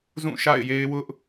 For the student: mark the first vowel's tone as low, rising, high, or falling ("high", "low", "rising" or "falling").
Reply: falling